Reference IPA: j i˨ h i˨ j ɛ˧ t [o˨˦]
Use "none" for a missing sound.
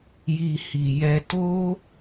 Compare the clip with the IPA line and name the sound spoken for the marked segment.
o˦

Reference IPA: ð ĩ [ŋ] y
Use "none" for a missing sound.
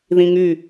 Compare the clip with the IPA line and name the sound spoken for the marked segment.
ŋ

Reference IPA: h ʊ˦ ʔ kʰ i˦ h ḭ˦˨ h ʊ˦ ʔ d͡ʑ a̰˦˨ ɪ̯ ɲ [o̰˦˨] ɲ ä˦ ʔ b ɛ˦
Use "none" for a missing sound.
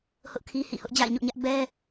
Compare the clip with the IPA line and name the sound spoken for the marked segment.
o̰˦˨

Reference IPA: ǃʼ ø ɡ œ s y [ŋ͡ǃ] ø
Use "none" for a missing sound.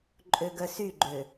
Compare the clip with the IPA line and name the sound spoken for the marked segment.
ɡ͡ǃ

